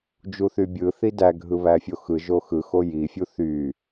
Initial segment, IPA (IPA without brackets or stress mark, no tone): d͡ʒ